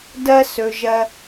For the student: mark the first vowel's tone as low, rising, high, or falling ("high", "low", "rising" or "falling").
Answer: high